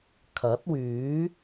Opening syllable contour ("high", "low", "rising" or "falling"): rising